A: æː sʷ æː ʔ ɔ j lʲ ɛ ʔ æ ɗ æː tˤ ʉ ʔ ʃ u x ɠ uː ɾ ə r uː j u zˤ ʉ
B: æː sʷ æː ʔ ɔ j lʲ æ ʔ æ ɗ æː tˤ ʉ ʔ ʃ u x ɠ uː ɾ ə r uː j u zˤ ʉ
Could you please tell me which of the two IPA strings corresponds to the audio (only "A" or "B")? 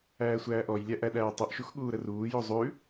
B